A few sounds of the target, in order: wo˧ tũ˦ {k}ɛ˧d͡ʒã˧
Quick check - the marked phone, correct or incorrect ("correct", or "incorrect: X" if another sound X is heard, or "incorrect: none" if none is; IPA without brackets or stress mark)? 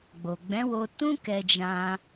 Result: correct